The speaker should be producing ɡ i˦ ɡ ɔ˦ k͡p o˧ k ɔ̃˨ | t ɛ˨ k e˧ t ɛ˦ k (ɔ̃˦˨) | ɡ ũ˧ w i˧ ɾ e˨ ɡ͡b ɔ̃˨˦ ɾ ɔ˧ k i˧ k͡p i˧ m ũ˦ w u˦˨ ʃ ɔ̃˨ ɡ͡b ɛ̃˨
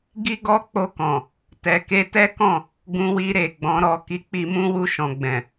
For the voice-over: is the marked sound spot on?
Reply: yes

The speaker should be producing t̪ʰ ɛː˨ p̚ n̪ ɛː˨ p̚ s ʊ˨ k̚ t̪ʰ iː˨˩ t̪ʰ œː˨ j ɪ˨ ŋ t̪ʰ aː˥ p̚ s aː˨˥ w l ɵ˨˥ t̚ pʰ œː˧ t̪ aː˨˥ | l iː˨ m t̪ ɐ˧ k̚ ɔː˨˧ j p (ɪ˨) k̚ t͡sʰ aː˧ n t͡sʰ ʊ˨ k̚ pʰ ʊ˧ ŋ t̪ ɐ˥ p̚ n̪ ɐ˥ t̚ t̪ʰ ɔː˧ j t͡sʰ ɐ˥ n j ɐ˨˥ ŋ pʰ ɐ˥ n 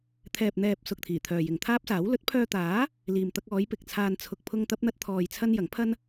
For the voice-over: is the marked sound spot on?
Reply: yes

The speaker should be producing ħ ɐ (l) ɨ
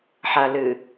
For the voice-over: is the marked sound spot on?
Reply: yes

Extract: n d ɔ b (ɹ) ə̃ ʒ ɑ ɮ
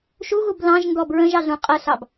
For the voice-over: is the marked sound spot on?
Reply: yes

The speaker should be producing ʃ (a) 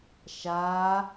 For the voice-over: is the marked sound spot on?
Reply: yes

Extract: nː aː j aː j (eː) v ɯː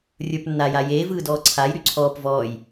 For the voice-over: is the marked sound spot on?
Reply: yes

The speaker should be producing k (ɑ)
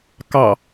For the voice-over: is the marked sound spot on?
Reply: yes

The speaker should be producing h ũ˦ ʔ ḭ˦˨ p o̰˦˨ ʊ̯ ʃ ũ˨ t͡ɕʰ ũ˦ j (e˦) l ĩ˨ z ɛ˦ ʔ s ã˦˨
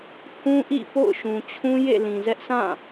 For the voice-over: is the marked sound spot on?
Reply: no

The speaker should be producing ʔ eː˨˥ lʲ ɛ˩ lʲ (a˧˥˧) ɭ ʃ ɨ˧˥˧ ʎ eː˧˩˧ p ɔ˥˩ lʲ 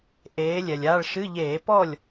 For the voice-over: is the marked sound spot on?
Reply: yes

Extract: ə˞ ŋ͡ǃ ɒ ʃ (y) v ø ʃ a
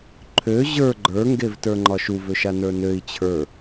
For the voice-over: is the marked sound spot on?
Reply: no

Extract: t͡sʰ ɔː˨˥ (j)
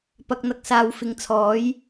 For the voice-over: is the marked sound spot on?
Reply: yes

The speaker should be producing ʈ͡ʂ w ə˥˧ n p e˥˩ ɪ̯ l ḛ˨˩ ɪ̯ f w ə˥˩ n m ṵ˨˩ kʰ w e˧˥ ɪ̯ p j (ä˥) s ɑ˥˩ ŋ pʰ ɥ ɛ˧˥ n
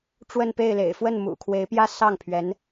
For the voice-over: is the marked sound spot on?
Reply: yes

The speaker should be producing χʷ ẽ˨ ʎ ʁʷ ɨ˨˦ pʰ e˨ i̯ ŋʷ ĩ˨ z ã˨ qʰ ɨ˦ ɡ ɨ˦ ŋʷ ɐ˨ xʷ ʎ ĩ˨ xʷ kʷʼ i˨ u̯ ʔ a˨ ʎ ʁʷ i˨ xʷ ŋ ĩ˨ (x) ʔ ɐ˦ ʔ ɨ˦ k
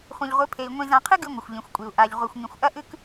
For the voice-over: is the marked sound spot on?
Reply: no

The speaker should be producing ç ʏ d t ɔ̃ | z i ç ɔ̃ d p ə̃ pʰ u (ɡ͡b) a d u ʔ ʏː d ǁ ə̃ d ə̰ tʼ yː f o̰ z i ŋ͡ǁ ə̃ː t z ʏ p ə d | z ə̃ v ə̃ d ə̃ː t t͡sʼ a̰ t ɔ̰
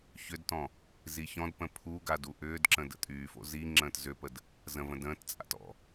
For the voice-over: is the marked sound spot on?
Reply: no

